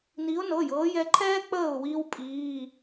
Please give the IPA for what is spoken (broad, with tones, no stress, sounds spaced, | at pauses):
n iː˨˦ ʊ̯ n ɤ˩˧˩ j ɤː˨˦ j ɛ˨˦ ǃʰ ɛː˦ k͡p əː˧˩ ʊ̯ w iː˦ w pʼ iː˩˧˩